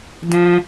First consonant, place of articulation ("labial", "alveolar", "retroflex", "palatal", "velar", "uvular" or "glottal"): alveolar